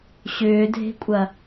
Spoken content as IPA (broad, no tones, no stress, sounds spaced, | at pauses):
ɕ ʏː dʱ e̤ kʷʼ ɐ